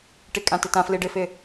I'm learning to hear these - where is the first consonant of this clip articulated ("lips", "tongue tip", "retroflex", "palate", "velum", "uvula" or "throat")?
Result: retroflex